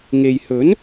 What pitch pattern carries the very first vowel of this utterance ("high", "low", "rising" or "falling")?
low